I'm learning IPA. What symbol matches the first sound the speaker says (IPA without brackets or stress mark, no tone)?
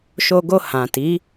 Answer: ʃ